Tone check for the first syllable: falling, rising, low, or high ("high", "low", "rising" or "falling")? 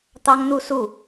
high